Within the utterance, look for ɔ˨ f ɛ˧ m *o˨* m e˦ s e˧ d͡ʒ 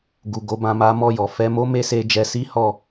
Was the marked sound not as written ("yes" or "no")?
yes